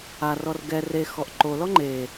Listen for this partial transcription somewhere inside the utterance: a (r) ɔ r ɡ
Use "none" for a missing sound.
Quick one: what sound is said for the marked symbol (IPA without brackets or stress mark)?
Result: r